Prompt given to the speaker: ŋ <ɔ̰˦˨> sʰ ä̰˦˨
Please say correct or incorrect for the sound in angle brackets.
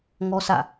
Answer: incorrect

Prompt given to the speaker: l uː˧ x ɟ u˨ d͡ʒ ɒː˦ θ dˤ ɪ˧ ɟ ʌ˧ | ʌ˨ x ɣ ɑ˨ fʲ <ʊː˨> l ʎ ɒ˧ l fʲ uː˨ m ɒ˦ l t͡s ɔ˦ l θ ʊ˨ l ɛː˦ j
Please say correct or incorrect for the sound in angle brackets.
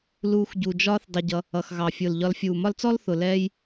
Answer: correct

